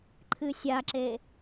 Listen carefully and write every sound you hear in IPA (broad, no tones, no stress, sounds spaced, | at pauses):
ǃʰ ɨ sʲ a ǁ e